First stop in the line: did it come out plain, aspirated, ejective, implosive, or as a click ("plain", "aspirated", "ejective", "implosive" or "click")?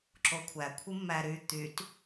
click